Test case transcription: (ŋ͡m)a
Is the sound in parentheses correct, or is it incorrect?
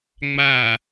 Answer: correct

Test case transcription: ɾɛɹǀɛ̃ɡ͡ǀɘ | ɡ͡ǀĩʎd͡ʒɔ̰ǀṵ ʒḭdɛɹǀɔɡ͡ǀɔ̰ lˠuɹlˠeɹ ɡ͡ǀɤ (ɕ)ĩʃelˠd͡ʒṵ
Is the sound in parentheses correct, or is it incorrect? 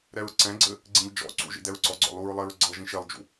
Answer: incorrect: ʒ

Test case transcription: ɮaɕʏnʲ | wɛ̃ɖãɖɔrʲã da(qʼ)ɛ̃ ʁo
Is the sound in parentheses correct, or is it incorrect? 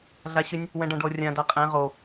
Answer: correct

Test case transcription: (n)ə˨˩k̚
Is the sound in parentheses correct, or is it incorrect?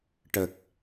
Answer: incorrect: ʈ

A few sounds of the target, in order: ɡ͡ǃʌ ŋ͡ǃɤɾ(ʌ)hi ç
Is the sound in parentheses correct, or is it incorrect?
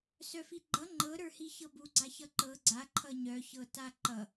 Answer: incorrect: ə˞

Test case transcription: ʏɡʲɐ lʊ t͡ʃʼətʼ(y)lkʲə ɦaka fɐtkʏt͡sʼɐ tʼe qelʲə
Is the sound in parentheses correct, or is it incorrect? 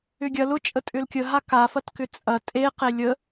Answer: incorrect: ʏ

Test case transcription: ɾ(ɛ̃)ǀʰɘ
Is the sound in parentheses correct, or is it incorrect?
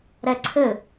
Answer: incorrect: ɛ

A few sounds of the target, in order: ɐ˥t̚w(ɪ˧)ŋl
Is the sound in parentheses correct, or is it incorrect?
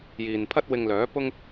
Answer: correct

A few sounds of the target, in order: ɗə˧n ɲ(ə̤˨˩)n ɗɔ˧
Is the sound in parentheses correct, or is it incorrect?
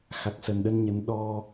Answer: incorrect: ə˨˦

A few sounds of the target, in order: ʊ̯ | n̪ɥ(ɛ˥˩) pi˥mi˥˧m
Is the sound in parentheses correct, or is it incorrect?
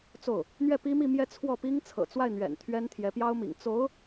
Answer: correct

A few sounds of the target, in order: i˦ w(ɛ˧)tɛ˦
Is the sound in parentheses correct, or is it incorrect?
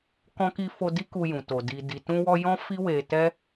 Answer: incorrect: e˧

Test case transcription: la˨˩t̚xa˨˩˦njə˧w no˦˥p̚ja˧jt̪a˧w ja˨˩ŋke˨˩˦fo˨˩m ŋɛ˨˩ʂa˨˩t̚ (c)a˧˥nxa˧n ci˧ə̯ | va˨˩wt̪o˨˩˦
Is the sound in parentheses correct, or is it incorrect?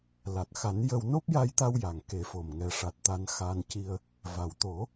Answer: incorrect: t̪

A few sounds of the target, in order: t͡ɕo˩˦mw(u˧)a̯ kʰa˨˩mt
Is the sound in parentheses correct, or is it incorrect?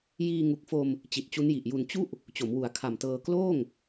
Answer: incorrect: u˩˦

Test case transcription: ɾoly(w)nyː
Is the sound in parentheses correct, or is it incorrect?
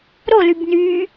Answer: incorrect: b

